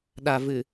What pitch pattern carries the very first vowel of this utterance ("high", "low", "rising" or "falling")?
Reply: low